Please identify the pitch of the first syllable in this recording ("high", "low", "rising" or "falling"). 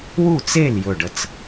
falling